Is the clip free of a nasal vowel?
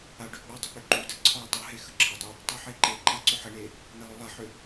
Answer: yes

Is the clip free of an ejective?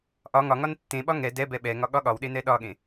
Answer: yes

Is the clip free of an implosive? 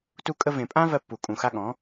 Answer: no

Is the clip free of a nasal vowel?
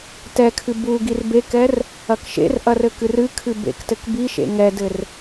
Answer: yes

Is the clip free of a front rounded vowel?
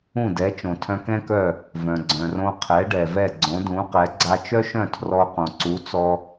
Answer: no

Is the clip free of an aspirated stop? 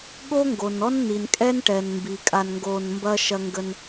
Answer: yes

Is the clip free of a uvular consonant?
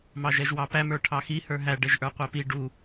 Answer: no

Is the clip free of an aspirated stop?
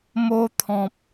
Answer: no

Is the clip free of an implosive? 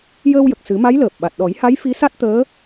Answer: no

